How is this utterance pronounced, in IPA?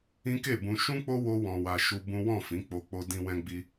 ĩ˦ke˦˨bũ˧ ʃũ˦k͡po˦ wo˦wɔ̃˧wa˧ ʃu˧ bũ˦ wɔ̃˦˨ fĩ˨˦k͡po˧ k͡po˧dĩ˧wɛ̃˧ɡ͡bi˧

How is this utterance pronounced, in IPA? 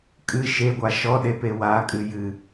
kʼɨ ʃeɡʷa ʃɔɗepe wakʼɨ jɨ

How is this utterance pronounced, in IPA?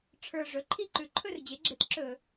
ʈ͡ʂʰə˞˨˩ ʐɵ˩˥ǃʰi˥˨ ǃʉ˨˩ǃʰɵ˥˨rd͡ʑe˩˥ɡ͡ǁe˩˥t ǁɵ˧˩˧

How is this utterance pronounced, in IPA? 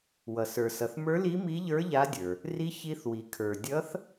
wʌ˩sə˞˩sʌ˩θ mə˞˧˥ li˧˥mi˧˥ʎə˞˧˥ ʎa˧˥dʲə˞˩ | ri˧˥ çi˧˥θwi˩kʰə˞˩ dʲʌ˧˥θ

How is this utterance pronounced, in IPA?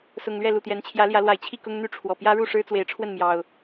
sʊ˨˩ŋlɥɛ˥˨ lu˨˩t̪jɛ˨˦nt͡ɕʰjä˨˦ljä˨˦ lwa˨˩ɪ̯t͡ɕʰi˥˨ kʊ˦ŋn̪y˥˨ʈ͡ʂʰwɔ˨˩ pjä˦ɻu˥˨ ʂɻ̩˦t͡swe˨˦ɪ̯ʈ͡ʂʰwə˥˨nmjɑ˨˩ʊ̯

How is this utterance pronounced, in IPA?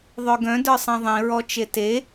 ðˤœɡœ̃də˞ sˤẽðˤĩɹɔt͡ʃe te

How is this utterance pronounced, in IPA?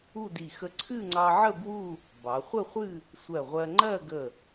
u˥˧di˧˩ xə˥ ǀʰɨ˥˧ŋ͡ǀɑ˧ʕə˥˧ bwu˥˧ | bɑ˩˧χʷə˥˧χʷɨ˥˧ | sʷɜ˧˩ʁʷɜ˧ ŋ͡ǃɜ˥˧ɡə˧˩

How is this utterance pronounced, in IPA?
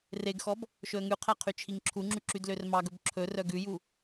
reɡxɔb | ʃɵə̯ŋʉqʰæ qʰyt͡ʃʰiŋǁʰuŋ͡ǁy ǁydlørmɑɡɵb ǁʰɵrœ ɡʉju

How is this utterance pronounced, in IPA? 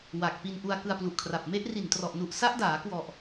wa˨˩k̚ pi˧nʔu˧a̯ kɯ˧a̯plu˨˩ʔkʰra˨˩p̚ me˦˥ʔri˨˩ntrɔ˨˩ʔnu˨˩ʔ sa˦˥ʔdaː˩˦kwɔ˨˩ʔ

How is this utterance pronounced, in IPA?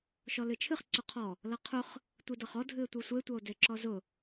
ʃɔlɨt͡ʃʰɨχ ǀʊqʰɔ | lʌqʰʊχ | tʷidʌχɔ dʱɨe̯tʷɨsʷe tʷʌo̯deǁɔzʊ

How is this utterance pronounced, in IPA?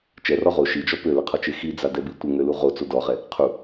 t͡ʃɛrɔ ʁo ʃid͡ʒɔ pøləqʰɔt͡ʃe xid͡zadɛbi tʷəŋølu ʁot͡so dɔʁɛ | qʰu

